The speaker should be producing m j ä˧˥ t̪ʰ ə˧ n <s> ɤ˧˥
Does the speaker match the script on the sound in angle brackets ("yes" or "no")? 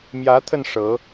no